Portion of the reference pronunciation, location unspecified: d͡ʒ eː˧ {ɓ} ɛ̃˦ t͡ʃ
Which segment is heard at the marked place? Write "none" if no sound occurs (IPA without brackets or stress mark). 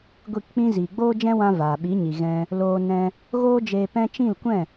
p